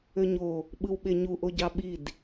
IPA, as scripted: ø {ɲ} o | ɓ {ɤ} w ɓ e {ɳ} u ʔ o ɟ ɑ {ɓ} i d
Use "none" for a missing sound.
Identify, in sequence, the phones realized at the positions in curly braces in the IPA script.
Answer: ɲ, ɯ, ɲ, ɓ

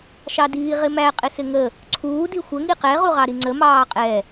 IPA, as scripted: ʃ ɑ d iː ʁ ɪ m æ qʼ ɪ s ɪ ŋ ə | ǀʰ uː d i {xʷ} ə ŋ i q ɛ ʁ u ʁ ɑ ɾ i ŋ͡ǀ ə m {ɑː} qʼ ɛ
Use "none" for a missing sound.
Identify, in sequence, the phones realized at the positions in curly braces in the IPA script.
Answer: xʷ, ɑː

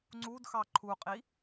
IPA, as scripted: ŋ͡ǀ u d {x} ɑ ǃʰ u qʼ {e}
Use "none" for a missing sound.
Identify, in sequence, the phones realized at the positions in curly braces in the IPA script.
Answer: x, i

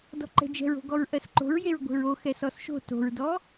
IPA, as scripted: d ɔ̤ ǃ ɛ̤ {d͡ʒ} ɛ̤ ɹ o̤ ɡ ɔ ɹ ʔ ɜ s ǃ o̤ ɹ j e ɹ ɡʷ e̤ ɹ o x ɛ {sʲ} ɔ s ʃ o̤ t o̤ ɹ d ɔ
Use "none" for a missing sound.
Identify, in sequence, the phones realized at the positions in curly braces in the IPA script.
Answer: d͡ʒ, s

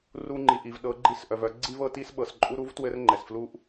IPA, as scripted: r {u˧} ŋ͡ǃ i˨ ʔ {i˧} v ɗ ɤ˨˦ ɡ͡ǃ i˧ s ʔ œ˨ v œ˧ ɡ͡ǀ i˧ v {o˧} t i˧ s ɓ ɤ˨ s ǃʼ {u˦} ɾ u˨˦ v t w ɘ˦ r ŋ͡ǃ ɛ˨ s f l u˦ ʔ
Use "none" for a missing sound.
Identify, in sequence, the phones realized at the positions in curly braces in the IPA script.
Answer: u˧, i˨, ɤ˧, u˧

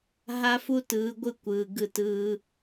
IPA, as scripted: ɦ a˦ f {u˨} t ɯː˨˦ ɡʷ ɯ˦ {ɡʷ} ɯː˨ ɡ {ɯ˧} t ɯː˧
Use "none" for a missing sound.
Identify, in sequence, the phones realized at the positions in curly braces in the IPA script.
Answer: u˦, kʷ, ɯ˧

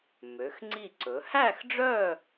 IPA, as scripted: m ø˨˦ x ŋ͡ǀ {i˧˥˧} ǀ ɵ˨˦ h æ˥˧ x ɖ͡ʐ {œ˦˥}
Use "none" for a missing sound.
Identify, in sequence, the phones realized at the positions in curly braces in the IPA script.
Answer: i˥˧, œ˥˧

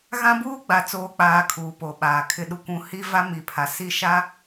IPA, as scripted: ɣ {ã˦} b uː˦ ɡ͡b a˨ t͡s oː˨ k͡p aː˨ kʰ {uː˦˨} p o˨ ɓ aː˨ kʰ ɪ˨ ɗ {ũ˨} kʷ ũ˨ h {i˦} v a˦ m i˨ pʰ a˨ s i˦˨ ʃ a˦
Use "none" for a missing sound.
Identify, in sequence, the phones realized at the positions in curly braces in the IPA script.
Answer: ã˦, uː˨, u˨, i˦

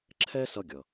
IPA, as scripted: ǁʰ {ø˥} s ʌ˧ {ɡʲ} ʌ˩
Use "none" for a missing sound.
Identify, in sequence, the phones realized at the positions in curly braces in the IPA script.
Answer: ɛ˥, ɡʲ

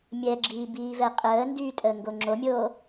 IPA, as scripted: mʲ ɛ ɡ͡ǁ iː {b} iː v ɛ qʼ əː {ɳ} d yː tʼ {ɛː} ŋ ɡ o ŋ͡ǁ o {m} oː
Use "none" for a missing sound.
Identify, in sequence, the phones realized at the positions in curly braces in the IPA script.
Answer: b, n, əː, mʲ

